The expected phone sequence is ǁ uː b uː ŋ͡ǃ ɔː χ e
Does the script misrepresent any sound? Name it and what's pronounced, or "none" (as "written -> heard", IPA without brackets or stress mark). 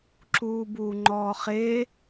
none